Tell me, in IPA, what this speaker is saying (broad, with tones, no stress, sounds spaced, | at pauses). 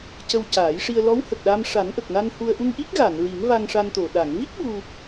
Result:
c ə˧ w c aː˨˩˦ j ʂ i˧ ə̯ l ɔ˧˥ w h ə˨˩ k̚ ɗ aː˧ m ʂ a˨˩˦ n ʔ ə˨˩ k̚ n a˧ n h u˧ ə̯ ʔ u˧ ŋ ʔ i˦˥ k̚ ɣ a˨˩˨ n ɹ i˨˩˦ ŋ v a˧ ŋ ʂ a˧ n t̪ o˨˩ ɗ a˨˩˨ ŋ v i˦˥ k̚ ɓ u˧